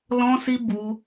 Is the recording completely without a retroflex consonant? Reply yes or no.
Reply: yes